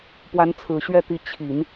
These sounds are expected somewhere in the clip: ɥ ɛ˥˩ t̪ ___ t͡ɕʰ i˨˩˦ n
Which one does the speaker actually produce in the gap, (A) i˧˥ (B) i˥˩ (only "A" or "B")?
A